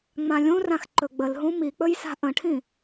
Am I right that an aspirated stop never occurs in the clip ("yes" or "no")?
no